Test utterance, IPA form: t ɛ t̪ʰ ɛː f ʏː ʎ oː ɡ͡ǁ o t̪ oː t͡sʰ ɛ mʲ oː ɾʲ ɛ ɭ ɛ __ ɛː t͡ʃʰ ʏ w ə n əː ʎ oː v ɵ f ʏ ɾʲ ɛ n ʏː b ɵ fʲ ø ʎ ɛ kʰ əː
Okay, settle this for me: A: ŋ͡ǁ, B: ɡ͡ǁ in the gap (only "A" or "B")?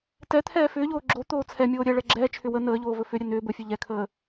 B